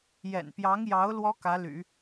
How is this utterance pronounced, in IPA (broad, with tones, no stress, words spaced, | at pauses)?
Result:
jɛ̰˨˩npjɑ˧˥ŋjɑ˧˥ʊ̯ lwɔ˥kä˧˥ly̰˨˩˦